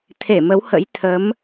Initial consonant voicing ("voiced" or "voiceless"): voiceless